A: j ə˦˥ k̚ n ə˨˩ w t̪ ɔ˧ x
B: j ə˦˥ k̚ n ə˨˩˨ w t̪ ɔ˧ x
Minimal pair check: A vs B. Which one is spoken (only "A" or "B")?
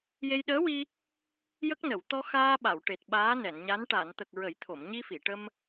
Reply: B